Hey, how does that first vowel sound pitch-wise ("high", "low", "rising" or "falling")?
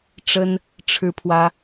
high